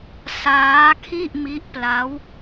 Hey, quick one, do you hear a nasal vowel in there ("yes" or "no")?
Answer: no